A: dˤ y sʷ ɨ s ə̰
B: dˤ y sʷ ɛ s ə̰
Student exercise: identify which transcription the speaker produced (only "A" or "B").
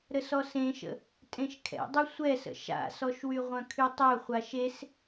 B